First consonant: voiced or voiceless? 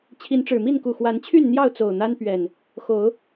voiceless